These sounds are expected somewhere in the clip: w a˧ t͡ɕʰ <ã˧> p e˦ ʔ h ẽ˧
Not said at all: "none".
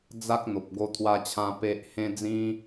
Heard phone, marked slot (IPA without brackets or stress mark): ã˧